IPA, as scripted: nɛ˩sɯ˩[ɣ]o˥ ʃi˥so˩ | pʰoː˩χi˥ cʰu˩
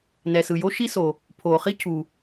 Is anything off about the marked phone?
yes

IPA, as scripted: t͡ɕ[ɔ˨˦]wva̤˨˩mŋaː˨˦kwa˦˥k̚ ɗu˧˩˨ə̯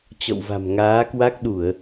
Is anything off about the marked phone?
yes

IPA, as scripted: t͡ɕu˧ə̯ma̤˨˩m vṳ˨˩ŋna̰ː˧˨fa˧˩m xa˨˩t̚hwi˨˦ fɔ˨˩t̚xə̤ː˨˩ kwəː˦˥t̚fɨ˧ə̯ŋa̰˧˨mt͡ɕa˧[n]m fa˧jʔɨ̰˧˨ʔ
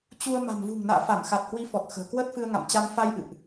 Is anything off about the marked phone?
yes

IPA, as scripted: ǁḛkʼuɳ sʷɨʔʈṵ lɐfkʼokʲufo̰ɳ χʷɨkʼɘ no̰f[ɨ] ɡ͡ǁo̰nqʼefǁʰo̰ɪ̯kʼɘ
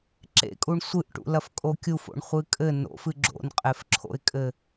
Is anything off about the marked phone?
no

